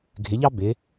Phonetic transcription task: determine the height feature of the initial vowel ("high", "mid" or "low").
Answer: high